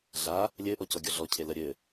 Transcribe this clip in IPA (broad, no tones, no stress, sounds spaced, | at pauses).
ɮ a | lʲ ɘ ʔ ɔ c ɔ ɡʲ ɔ ɮ ɔ cʰ e l ə ɾʲ ɘ